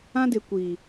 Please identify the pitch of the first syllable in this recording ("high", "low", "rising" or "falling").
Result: high